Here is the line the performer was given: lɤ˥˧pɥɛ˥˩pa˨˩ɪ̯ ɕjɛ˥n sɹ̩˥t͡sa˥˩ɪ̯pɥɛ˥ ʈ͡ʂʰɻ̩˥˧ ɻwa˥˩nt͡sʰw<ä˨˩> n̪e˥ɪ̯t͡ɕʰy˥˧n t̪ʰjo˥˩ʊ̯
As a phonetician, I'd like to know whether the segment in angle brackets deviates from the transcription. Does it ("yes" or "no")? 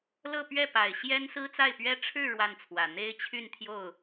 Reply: no